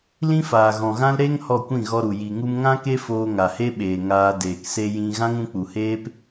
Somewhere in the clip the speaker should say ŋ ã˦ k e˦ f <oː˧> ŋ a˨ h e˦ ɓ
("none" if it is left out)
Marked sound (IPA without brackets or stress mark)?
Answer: oː˧